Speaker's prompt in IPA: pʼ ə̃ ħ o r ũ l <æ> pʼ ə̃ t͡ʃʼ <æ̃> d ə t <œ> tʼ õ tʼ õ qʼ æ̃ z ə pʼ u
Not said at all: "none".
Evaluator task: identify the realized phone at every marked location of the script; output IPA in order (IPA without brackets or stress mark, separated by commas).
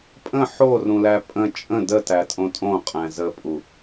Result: æ, ə̃, æ